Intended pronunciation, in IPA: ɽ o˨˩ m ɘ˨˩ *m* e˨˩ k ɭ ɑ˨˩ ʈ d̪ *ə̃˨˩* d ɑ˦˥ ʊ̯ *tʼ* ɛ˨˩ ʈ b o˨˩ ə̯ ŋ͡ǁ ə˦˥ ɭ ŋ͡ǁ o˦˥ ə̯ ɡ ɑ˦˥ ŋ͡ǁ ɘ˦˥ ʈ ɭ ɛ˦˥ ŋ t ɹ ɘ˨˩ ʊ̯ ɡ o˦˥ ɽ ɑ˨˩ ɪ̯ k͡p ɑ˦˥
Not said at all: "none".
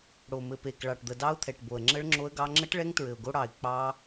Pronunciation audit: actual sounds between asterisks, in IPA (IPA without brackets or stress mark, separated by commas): p, ə˨˩, t̪ʰ